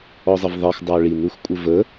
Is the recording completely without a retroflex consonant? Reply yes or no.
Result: no